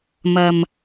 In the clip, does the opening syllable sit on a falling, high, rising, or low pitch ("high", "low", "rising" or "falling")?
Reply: low